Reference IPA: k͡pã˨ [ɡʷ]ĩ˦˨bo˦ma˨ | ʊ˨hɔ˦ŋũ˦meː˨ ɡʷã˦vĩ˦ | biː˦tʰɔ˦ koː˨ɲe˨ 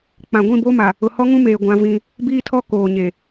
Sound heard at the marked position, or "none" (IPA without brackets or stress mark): ɡʷ